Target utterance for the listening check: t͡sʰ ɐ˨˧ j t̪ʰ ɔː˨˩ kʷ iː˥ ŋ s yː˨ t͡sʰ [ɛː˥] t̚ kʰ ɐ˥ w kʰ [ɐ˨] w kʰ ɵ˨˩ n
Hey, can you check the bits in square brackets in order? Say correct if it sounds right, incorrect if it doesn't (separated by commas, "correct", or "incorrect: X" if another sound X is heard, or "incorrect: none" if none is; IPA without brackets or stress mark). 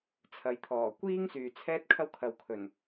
correct, correct